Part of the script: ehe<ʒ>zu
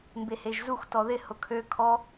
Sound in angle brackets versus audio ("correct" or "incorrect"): correct